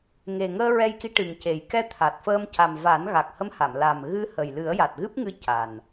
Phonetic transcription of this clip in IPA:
ŋ e˨˩ ŋ əː˧ ɹ ɛ˧ j k i˧˥ ʈ ɨ˨˩ ŋ c e˨˩ j k ɛ˧ t̪ʰ a˨˩ t̚ f əː˧ m c a˨˩ m v a˨˩˦ n ɣ a˨˩ k̚ h ə˧˥ m h a˨˩˨ m l a˨˩ m ɣ ɨ˧ h ə˨˩ j l ɨ˨˩˦ ə̯ j a˨˩ t̚ ɣ ɨ˦˥ p̚ ŋ ɨ˧ c a˨˩ n

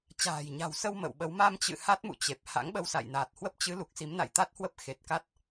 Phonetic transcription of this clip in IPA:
t͡ɕ a̤ː˨˩ j ɲ a̤˨˩ w s ə˧ w m ə̰˧˨ w ɓ ə˨˦ w m a˧ m t͡ɕ ɨ̰˧˨ h a˦˥ t̚ m ṵ˧˨ t͡ɕ e˨˩ p̚ h a̰˧˥ ŋ ɓ ə˧ w s a̰˧˨ j n aː˨˩ t̚ h w ə˦˥ p̚ t͡ɕ ɨ˨˦ l u˨˩ k̚ s i˨˦ m n a̰˧˨ j t̪ a˦˥ t̚ h w ə˦˥ p̚ x e˨˩ t̚ k a˦˥ t̚

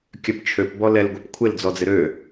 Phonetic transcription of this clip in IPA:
kʲ œ p t͡ʃʰ ø p b ɔ l ɛ l ɡʷ e p kʷʰ ɪ l d͡z ɔ d͡z ɪ ɾ ø

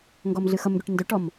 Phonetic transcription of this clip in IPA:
ŋ ɡ ɔ m ɮ ɨ x ʌ m ɡ y ʈ n d ø ʈ ɔ m

